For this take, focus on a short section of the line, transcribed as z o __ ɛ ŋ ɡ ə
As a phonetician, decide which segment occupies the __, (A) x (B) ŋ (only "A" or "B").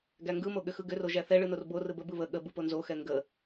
A